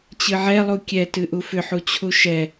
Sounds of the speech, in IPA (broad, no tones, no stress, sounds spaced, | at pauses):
t͡ɕ ɨ ʕ ɛ lˠ u kʲ ɛ t ɨ ʔ u f ʏ ħ u t͡ɕʰ u ʃ ɛ